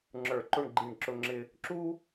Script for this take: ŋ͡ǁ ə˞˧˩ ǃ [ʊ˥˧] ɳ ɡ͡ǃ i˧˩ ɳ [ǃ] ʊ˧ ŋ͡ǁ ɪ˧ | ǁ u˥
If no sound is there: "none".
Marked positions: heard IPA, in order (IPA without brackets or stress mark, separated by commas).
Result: ʊ˥˧, ǁ